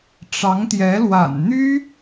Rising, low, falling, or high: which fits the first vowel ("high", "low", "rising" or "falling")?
rising